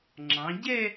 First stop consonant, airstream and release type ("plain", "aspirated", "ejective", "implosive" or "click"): click